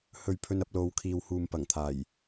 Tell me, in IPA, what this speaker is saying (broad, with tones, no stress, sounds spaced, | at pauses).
h ɵ˨ ɥ pʰ ɵ˧ n ɐ˧ p̚ l o˨˧ w kʰ iː˨ w h uː˨ m p ɐ˨˩ ŋ t̪ʰ aː˨˩ j